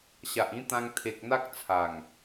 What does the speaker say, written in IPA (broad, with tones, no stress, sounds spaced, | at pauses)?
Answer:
ɕ a˨ ʔ ĩ˦ t̪ ã˧ ŋ t̪ʰ e˨ k̚ n̪ a˦ k̚ t͡sʰ a˨˩ ŋ